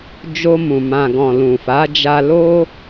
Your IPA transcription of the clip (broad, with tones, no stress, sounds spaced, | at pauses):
d͡ʒ o˧ m ũ˨ m ã˨ ɡ ɔ̃˨ l ũ˨ f a˨˦ d͡ʒ a˧ l o˦